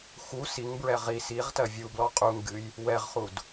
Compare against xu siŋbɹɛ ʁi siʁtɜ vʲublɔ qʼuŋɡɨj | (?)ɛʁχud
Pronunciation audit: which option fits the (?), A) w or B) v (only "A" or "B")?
A